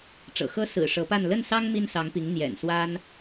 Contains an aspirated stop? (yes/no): no